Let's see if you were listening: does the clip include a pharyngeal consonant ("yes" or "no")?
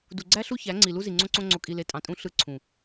no